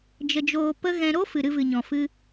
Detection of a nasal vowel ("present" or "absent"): present